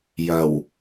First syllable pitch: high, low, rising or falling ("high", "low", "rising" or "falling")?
low